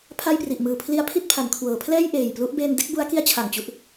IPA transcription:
pʰa˥˩jpri˨˩ʔmɯː˨˩ pʰli˦˥a̯pʰi˦˥t̚pʰa˩˦n kʰwɤː˩˦ pʰlɛː˥˩j ʔeː˨˩jplu˦˥ʔ beː˧nde˥˩k̚bu˦˥a̯ki˦˥a̯ t͡ɕʰa˨˩ŋt͡ɕu˦˥ʔ

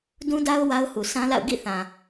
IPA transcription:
dũ˦da˦ʊ̯ wa˦ʊ̯hu˨ sʰã˦la̰˦˨ʊ̯ ɡḭ˦˨θã˨

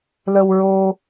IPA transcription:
lə˧wɹo˧

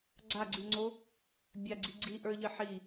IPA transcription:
ɡ͡ǀaɡ͡ǀɨŋ͡ǀo | bʲaɡ͡ǀi ɡ͡ǀiʔə˞ʎɨ ħi

